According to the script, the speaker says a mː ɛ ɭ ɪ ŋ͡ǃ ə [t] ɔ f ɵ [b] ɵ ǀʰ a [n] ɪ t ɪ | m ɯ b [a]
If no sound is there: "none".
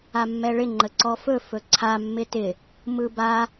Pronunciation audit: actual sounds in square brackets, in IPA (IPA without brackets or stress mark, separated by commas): ǀ, f, mː, a